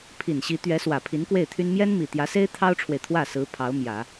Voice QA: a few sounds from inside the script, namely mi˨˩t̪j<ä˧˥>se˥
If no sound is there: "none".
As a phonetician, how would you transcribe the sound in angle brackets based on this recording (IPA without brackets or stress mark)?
ä˧˥